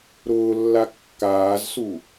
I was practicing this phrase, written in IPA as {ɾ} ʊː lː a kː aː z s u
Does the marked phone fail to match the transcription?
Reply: no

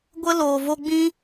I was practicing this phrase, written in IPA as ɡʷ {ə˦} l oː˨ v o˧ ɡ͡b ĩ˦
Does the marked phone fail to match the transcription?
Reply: no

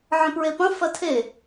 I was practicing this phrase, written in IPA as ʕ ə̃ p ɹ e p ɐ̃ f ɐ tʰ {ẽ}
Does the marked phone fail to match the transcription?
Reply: yes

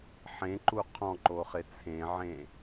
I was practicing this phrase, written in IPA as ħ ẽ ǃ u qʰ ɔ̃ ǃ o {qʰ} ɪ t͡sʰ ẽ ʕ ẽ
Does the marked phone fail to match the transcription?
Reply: yes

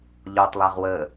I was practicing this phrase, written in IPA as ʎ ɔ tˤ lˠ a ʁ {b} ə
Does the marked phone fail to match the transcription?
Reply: yes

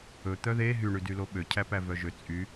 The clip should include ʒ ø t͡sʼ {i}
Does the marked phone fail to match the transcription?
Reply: yes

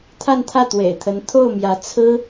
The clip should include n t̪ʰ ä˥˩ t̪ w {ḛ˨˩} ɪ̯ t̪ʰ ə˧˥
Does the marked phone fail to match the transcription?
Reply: no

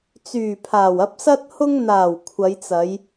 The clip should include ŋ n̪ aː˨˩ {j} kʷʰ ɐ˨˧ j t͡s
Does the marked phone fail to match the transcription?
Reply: yes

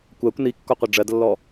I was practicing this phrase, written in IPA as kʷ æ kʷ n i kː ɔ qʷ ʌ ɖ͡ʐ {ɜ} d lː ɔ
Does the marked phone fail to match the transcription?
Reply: no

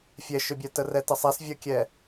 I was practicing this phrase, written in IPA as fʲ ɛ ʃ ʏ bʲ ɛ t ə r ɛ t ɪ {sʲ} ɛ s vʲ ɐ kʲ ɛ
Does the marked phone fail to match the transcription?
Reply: yes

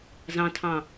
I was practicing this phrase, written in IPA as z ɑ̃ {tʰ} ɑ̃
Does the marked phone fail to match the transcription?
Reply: no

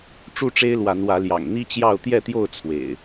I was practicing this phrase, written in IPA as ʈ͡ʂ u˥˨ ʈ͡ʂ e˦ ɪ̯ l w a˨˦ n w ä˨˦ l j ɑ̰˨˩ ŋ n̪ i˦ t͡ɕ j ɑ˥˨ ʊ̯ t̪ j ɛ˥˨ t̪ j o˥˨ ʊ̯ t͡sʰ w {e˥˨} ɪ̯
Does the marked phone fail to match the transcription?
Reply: yes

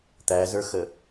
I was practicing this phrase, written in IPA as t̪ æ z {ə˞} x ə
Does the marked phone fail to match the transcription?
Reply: no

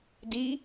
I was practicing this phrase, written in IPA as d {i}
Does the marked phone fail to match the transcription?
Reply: no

